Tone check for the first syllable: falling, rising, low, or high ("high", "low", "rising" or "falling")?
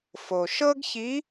low